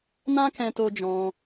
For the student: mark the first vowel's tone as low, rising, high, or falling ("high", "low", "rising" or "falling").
high